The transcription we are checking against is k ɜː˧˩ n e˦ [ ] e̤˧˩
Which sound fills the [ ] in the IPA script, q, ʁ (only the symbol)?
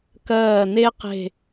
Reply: q